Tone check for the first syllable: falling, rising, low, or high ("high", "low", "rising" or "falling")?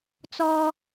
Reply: low